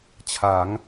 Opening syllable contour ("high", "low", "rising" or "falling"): rising